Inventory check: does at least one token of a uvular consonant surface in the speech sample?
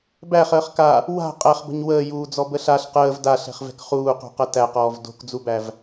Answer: yes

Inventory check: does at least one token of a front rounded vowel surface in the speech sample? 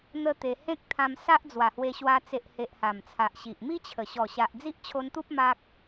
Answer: no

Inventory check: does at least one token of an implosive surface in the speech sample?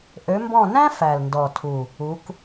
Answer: no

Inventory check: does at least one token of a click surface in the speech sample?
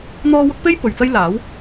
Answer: no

